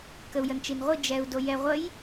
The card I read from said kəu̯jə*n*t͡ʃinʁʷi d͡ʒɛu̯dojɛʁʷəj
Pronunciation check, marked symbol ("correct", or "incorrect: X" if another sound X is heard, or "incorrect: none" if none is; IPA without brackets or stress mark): correct